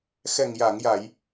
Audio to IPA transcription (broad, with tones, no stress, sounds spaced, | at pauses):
x ɛ˨˩ ŋ j a˨˩˨ ŋ j a˨˩˨ j